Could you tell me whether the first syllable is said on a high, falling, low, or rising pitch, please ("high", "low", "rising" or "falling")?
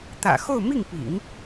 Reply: low